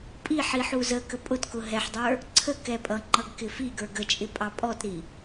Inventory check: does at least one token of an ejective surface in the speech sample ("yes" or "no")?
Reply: yes